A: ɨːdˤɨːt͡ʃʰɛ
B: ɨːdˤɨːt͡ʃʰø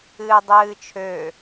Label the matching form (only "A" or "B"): B